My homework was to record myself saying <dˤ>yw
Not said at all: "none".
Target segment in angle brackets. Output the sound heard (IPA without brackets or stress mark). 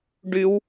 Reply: ɖ